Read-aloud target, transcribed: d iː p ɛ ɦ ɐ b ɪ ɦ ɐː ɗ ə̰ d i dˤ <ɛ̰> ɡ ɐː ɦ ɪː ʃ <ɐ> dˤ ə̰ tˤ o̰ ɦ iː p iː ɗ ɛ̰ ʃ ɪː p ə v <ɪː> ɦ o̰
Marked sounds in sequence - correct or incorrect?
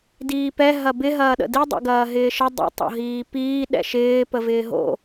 correct, incorrect: ə, correct

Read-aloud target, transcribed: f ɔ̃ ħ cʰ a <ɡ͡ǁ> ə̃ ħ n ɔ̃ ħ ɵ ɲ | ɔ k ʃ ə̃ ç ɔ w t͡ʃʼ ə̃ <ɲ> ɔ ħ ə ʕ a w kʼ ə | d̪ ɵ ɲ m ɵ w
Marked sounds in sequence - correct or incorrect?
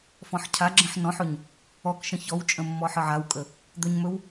correct, incorrect: mː

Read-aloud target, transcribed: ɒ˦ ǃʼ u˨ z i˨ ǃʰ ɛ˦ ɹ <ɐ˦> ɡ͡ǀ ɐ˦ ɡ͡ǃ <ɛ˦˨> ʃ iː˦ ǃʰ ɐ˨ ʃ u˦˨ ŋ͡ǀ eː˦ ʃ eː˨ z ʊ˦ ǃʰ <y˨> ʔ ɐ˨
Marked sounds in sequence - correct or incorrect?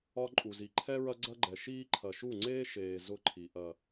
correct, incorrect: ɛ˨, incorrect: i˨

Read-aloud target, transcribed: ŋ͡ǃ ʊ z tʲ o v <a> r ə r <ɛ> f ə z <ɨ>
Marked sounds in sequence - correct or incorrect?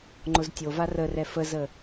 correct, correct, incorrect: ə

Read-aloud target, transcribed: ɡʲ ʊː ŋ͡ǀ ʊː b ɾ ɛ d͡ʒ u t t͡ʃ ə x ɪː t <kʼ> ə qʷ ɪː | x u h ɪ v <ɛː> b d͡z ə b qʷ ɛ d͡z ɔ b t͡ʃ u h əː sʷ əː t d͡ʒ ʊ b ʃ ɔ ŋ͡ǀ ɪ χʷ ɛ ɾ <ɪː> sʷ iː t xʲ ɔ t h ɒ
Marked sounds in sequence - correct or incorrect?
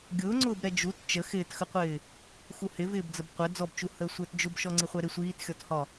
incorrect: x, incorrect: ɪː, incorrect: ɪ

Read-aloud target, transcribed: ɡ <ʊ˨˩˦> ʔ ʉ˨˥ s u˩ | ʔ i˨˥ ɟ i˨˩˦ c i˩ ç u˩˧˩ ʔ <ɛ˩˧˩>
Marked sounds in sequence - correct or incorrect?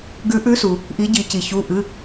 incorrect: ʉ˨˩˦, incorrect: ɨ˩˧˩

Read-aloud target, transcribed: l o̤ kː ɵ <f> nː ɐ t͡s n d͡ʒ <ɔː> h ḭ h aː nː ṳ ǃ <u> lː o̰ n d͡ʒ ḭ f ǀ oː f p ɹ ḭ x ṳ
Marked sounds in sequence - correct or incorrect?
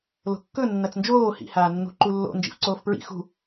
incorrect: none, incorrect: oː, correct

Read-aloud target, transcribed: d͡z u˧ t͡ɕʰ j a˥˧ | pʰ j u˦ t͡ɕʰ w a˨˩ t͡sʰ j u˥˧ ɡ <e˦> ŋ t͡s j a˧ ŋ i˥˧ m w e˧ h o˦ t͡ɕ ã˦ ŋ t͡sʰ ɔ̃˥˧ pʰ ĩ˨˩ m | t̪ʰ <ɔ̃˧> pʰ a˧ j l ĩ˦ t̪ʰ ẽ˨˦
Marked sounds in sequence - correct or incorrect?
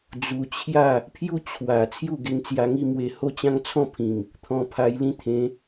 incorrect: e˧, correct

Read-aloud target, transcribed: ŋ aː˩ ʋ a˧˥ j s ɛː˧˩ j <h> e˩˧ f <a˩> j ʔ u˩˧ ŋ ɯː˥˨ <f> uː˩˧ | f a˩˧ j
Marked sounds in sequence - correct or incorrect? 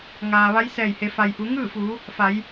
correct, correct, correct

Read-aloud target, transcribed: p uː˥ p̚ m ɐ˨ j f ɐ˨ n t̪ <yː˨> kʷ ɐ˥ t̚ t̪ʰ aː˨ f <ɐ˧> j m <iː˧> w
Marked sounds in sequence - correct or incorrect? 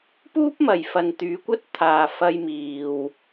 incorrect: yː˨˧, correct, incorrect: iː˨

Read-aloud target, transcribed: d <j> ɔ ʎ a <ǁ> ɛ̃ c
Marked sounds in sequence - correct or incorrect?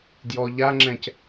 correct, incorrect: ŋ͡ǁ

